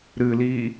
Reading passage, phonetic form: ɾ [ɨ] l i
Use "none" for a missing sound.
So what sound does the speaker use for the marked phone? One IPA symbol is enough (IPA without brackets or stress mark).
ɨ